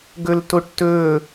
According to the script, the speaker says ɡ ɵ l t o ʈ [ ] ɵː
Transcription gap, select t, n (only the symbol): t